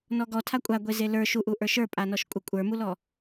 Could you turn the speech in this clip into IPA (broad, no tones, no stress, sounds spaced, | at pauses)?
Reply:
n ɔ ɡ ɔ tʰ a kʷʼ a ɡʷ e z e l ə˞ ʃ u ʔ u ʔ ə˞ ʃ ə˞ pʼ a n ɔ ʃ kʷʼ ə kʷʼ ə˞ m u l ɔ